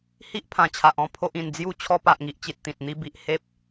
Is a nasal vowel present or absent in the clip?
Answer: present